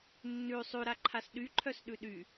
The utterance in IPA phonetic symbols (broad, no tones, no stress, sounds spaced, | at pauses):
nː ʉ sˤ ʉ ɾ a ǃʰ a s ɗ y ǃʰ œ s ɗ ʉ ɗ y